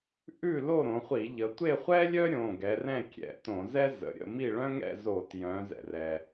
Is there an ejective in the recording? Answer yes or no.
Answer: no